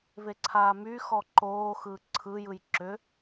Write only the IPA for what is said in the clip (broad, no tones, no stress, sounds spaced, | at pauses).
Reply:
v e ǀʰ aː m y x ɔ ǃ oː x ɯː ǀʰ ɯ j ɯ j ǁ ʏ